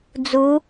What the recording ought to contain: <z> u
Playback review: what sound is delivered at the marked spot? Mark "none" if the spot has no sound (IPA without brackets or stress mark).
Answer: d͡z